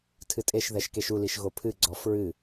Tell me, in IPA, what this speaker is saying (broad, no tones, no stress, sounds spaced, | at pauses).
tʰ ɨ tʼ e ʃ ð ɛ ʃ k e ʃ u l i ʃ ɣ o pʰ ɨ ɡ͡ǀ ɔ f ɹ ɨ